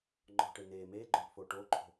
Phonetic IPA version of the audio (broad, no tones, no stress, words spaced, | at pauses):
ŋ͡ǃɔ̤ʈe neː meːɡ͡ǃœːpfoː ʈoǃʰo̤